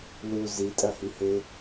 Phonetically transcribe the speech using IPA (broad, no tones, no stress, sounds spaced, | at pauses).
l u z i tʼ ɐ h y h e